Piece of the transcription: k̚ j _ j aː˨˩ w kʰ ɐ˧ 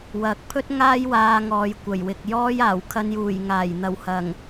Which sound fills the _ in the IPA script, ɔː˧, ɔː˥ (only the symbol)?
ɔː˥